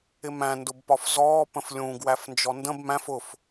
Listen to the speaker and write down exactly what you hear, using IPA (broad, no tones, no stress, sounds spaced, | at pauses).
ɪ m æ̃ n d ʊ b p ɒ f z ɔː p ə̃ f lʲ ũ ɡ w æ f n d͡ʒ ɔ n d ə̃ b m æ̃ f ʊ f